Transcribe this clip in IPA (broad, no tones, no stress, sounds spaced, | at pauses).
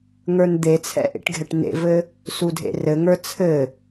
ŋ ə˞ n d̪ e t͡sʰ ɛ̰ ʔ ḛ ʈ ɡʱ ɛ ʈ n ḛ v ɘ | s u dʱ ḛ r ɘ ŋ ə˞ t͡sʰ ɘ